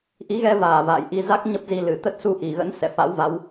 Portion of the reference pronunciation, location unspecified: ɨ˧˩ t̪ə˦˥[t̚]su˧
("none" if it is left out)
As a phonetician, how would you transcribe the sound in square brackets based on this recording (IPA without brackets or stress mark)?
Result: t̚